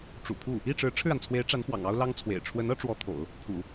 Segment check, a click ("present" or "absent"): absent